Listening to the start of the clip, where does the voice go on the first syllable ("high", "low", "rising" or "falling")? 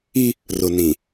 high